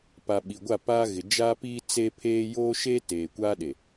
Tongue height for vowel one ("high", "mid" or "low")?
low